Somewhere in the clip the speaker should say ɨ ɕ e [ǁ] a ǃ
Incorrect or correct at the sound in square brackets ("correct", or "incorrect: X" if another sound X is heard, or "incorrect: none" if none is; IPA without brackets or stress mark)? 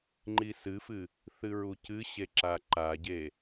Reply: correct